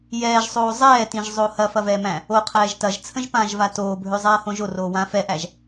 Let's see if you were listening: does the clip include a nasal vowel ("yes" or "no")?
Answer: yes